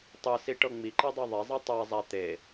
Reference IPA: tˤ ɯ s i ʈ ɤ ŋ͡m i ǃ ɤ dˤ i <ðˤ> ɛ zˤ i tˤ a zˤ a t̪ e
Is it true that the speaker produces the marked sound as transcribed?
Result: yes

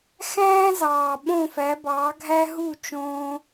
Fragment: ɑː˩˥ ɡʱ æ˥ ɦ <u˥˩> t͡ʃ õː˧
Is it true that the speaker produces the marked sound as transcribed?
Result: yes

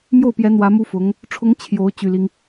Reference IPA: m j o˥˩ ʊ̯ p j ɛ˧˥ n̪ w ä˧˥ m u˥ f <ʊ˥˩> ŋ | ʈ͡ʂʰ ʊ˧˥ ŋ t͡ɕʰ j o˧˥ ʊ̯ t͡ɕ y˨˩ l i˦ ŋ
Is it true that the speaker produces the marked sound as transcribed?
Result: no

